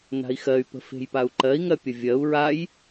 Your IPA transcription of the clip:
n a̤ i̯ x ɜ y̯ p ə̤ f e̤ j p a u̯ ǃ ɜ i̯ ŋ ɜ pʲ ə vʲ ɜ u̯ ɹ a j

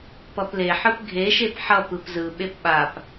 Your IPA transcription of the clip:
p ʌ p l e ħ ɯ p ɡʱ e ʃ e p ħ ʌ p ɯ p z ɯ ɓ e p ɓ a p

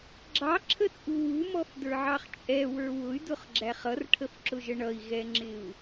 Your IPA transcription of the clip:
ɡ͡ǁ ɑ ǁʰ ə t͡sʼ u w u m ɔ f d ə˞ ʕ ɑ χ t͡ʃʼ ɛ w ə˞ w ʊ y̯ d ʊ χ ɡ͡ǁ æ χ ʌ r ʈʰ ə f ǁ ʊ ʒ ə ɳ ʌ i̯ ɣ ɛ ŋ͡ǁ ɪ u̯

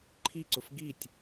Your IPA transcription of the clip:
ǃʰ i ǀ ʊ f ɡ i tʲ

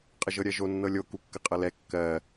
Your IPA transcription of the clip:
qʼ ə ʒ ɤ ɾʲ ɜ ʒ o nː ɤ lʲ o k u kː ə qʼ ɤ l ɛ kː ɜ

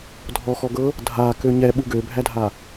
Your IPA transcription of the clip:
dʱ ɔ x ɔ ɡ ɤ | dʱ a k ø ɲ ɛ ɓ u ɡ ø bʱ æ dʱ a

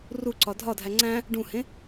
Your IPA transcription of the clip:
r u ǀ ɒ dʱ ɒ dʱ æ ŋ͡ǀ æ̃ | ɖ ũ h ẽ

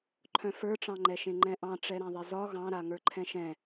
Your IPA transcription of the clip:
ǃʰ œ̃ f ə˞ ʈ͡ʂ ɑ̃ ŋ͡ǃ ɛ ʃ ẽ ŋ͡ǃ ɛ̃ ʔ ɑ̃ ʈ͡ʂ ɛ ɾ ã ðˤ ɛ z ɒ ɣ ɑ̃ ɾ a ŋ ə˞ ǃʰ ɛ̃ ʃ ɛ̃

